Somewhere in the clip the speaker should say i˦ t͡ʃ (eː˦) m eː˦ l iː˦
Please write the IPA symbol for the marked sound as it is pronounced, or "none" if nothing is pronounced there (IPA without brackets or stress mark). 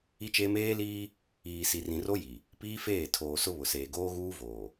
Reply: eː˦